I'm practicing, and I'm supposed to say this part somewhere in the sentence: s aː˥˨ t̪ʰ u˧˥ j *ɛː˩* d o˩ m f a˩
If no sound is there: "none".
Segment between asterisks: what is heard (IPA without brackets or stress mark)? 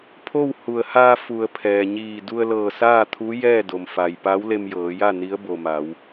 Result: ɛː˥˨